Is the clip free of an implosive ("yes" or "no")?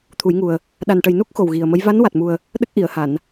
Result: no